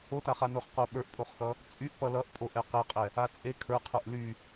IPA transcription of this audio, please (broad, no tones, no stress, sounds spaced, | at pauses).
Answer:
o t a χ a n o χ q o ɓ ə˞ ʔ pʼ o χ x ʌ | t͡sʼ y ʔ p ʌ l ʌ ʔ pʼ o ʔ ɛ q e qʼ ɛ | a t͡sʼ e kʰ ə˞ qʰ ə˞ ʔ l y